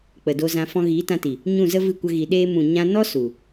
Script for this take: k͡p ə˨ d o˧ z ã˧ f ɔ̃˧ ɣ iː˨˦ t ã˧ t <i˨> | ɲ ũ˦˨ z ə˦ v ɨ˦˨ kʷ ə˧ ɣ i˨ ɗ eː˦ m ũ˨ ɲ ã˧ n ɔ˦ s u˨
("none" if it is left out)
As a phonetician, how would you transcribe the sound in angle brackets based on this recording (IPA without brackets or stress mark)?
i˨